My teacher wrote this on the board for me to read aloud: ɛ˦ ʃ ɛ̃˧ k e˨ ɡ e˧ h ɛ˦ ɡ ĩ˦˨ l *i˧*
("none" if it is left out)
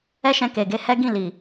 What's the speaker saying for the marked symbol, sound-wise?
i˨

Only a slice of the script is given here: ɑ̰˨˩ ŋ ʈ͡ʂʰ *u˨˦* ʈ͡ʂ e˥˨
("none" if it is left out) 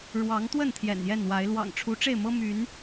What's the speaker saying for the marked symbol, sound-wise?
u˨˦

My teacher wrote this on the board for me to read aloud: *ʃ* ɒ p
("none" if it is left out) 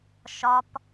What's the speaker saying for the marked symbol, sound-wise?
ʃ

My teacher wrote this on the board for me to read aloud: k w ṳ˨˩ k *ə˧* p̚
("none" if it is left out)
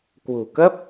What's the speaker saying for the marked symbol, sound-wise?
ə˦˥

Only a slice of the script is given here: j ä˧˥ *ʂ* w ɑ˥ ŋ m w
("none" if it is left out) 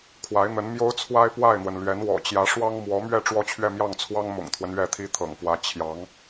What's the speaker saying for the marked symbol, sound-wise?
ʂ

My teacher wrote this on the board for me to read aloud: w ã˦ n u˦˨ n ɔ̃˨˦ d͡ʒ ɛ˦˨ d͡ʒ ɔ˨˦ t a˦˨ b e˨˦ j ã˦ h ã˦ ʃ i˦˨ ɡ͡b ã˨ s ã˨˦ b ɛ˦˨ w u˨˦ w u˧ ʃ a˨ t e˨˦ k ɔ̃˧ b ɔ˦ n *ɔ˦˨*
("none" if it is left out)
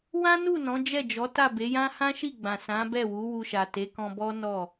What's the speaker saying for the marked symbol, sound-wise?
ɔ˦˨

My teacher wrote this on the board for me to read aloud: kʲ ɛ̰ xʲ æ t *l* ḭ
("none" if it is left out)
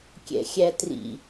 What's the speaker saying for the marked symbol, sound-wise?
r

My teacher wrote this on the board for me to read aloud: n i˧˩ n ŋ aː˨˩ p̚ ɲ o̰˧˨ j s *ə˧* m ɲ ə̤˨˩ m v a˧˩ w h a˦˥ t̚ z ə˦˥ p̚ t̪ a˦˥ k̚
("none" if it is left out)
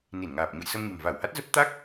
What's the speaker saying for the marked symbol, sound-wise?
ə˧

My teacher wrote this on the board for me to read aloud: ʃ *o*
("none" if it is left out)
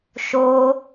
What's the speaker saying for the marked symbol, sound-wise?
o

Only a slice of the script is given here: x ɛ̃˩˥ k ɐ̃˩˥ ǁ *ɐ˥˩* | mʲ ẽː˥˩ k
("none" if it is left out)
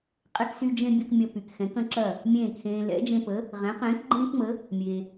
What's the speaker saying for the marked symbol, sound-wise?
ɐ˥˩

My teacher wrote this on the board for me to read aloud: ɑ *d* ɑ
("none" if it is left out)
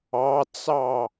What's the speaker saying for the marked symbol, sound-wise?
t͡s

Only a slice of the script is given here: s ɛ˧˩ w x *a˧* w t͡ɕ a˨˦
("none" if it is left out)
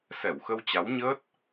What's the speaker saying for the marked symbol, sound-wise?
ə˧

